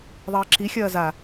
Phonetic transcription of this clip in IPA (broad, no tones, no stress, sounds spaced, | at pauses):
ðˤ ɐː ǁ i xʲ ɐː z a